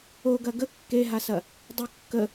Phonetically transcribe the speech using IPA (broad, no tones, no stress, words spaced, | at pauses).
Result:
oɡɐ ɡə kːeɦasɐ | dˤə kːə